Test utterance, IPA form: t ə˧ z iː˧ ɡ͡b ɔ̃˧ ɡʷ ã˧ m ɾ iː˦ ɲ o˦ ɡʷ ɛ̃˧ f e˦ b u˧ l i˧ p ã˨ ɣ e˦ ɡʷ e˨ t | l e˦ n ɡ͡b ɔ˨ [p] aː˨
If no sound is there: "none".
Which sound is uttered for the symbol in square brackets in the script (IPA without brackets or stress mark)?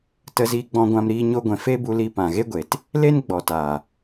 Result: t